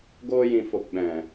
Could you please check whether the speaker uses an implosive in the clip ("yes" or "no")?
yes